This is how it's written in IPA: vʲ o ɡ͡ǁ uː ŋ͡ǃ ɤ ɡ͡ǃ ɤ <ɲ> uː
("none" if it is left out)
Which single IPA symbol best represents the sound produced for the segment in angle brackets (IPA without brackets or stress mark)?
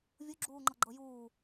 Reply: j